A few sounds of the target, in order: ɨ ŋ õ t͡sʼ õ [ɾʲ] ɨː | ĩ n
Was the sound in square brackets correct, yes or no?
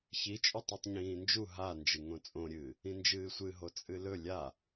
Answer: yes